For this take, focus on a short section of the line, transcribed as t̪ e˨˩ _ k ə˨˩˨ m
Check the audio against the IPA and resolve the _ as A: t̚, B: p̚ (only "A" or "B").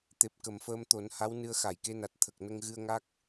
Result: B